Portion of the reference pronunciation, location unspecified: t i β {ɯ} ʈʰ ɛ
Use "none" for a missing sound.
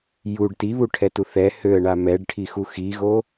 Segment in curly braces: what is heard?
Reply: u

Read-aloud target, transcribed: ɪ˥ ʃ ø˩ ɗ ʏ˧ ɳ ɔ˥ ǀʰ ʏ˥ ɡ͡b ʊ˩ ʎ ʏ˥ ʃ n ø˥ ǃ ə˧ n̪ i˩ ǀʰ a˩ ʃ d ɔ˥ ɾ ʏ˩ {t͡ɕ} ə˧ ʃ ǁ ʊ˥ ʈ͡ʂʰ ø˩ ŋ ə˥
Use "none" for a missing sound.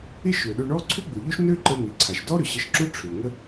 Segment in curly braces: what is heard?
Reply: ɕ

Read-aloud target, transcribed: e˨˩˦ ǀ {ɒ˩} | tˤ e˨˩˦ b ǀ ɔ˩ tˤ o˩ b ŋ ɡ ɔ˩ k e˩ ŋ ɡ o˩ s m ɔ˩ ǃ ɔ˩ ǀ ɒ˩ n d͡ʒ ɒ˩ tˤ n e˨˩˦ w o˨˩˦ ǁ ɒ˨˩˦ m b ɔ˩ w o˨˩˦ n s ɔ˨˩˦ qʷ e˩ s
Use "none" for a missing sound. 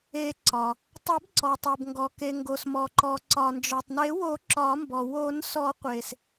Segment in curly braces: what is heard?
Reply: ɒ˩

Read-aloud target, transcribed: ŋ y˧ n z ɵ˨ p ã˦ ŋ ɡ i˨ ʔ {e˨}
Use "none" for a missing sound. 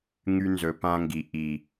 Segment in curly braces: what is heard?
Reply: i˨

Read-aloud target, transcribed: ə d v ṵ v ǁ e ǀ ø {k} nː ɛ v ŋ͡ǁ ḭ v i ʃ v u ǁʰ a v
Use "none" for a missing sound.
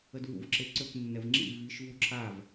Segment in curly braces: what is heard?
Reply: k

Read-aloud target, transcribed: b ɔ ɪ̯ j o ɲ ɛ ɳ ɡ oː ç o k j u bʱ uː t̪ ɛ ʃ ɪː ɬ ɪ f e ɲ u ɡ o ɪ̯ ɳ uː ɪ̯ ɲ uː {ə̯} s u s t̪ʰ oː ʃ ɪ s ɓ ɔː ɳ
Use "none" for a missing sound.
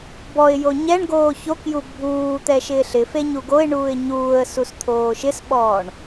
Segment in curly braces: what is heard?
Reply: ə̯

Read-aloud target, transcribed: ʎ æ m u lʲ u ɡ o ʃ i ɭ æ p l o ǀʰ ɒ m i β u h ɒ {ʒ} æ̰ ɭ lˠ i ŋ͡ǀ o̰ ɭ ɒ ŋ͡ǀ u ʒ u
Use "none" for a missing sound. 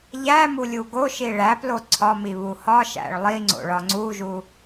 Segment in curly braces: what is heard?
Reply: ʃ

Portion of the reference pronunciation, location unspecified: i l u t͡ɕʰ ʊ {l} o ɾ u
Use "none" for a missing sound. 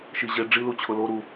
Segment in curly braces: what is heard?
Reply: l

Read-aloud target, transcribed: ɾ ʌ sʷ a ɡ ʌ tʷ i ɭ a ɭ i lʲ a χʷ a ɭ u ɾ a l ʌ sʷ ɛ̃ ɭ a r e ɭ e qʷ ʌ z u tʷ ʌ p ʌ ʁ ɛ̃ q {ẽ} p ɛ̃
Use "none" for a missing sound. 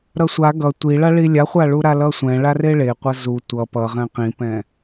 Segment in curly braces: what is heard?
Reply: ĩ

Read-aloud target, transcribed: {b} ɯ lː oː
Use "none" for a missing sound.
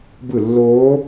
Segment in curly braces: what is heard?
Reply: b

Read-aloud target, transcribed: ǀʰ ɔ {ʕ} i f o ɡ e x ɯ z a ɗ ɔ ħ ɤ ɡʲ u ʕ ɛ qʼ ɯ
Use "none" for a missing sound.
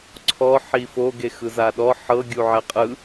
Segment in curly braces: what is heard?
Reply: ħ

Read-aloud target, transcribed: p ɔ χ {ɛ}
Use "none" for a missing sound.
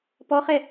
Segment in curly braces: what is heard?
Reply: ɛ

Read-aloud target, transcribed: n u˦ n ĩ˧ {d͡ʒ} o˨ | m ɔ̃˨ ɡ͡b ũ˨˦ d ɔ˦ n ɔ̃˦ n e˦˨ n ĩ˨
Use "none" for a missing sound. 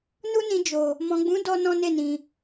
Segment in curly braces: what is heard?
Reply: d͡ʒ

